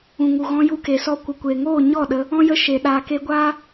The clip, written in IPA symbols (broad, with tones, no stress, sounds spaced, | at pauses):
ũ˨ ŋ u˨ ɣ ɔ̃˧ j u˧ k e˨ s ɔ˧ kʷ ə˨ kʷ e˨ ŋ oː˦˨ ɲ ɔ˦˨ ɗ ə˧ | ɔ̃˦ j ə˦˨ ʃ e˨ ɗ aː˨ k e˧ ɡʷ aː˦